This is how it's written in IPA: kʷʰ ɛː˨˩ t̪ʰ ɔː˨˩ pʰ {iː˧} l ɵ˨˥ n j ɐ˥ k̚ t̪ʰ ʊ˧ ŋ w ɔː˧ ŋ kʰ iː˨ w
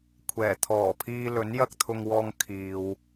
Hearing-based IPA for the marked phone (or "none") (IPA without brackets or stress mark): iː˧